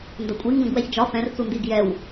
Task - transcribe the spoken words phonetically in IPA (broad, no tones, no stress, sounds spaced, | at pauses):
n d ɐ kʷʼ i ŋ ɡ ɐ̃ ɡ w ɛ ç d͡ʒ ɒ f ɛ̃ r t͡s u n d i ɡ j ɛ w